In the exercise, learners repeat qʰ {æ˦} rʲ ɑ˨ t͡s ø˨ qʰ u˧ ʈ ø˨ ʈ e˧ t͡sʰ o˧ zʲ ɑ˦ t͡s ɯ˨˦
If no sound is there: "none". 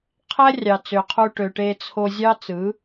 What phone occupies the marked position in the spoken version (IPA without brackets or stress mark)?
æ˦